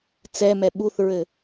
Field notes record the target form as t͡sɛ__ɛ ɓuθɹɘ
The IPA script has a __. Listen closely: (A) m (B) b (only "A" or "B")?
A